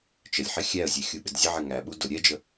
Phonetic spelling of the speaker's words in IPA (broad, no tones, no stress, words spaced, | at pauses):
t͡ʃəlʲħɪ xʲæə̯zʲɛ xʲuɓɪdzʲəʕɪ ŋæɓu dʊ ɾʲɛd͡ʒə